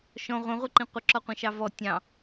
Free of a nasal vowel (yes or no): no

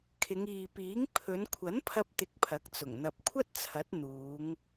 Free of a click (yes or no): yes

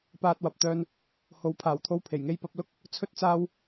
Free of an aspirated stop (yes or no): no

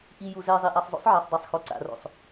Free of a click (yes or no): no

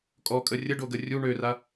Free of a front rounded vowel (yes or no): no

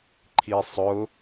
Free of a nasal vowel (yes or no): yes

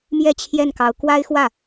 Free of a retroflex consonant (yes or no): yes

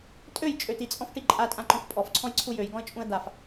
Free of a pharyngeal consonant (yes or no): yes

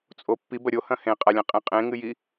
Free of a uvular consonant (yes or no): no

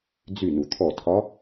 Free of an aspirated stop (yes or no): no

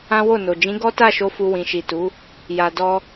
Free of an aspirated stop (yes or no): yes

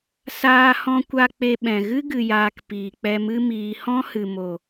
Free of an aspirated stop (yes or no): yes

